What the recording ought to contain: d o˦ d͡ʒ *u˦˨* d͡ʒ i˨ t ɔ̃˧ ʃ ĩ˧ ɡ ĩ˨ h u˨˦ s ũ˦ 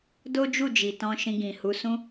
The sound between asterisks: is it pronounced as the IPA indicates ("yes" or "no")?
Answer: yes